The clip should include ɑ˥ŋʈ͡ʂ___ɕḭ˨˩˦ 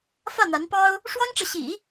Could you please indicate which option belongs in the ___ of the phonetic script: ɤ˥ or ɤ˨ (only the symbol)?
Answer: ɤ˨